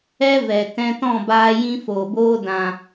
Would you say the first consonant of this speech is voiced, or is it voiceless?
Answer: voiced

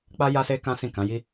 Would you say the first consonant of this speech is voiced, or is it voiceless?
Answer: voiceless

